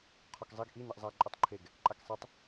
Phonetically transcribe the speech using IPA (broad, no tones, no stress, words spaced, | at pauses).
qʰɔkzˤiɡ ʔi niʔzˤa ǃʼʊtˤǃʰeɡ | ǃʼaksˤetˤ